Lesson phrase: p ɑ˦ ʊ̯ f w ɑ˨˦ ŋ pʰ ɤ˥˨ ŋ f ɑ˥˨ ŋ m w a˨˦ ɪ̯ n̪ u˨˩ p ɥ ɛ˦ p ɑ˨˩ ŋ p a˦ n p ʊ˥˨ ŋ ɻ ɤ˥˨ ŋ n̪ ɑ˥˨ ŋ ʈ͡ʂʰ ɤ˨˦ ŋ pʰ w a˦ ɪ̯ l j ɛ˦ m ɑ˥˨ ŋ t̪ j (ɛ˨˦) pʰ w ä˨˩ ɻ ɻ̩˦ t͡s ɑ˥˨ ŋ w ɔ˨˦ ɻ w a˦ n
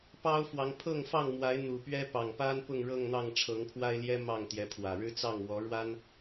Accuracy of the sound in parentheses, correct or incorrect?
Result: correct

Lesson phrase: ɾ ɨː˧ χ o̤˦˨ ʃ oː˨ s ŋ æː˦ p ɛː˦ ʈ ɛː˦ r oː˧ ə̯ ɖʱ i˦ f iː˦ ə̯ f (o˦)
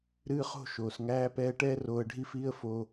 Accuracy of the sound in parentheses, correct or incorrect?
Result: incorrect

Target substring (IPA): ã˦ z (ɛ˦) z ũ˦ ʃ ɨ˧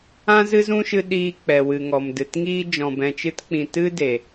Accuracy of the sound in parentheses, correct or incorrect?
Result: incorrect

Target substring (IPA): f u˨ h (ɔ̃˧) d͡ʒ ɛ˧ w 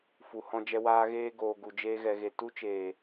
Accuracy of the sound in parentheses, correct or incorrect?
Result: correct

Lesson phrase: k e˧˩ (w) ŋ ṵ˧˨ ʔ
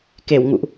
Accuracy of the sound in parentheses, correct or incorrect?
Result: correct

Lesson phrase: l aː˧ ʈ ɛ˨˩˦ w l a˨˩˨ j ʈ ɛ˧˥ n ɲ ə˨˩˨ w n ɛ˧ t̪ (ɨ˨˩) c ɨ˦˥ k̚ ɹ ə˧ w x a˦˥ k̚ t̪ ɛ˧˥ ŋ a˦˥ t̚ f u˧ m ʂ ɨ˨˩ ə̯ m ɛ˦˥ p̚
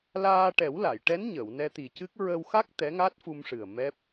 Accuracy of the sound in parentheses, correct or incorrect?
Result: incorrect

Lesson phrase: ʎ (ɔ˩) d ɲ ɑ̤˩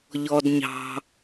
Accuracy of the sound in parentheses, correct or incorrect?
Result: correct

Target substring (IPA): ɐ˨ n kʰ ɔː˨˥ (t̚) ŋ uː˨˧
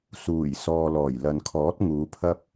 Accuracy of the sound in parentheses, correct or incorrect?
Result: correct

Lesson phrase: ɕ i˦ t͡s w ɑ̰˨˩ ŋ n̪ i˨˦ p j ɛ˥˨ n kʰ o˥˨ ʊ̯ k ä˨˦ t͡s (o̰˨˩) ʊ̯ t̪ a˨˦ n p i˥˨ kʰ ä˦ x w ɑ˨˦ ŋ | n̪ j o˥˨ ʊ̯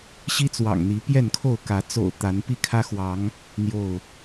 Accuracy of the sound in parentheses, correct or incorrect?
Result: correct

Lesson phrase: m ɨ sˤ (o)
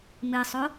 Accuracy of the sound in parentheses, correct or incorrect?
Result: correct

